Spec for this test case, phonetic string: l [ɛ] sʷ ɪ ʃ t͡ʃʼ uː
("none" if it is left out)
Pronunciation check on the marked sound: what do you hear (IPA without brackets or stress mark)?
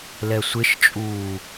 ɛ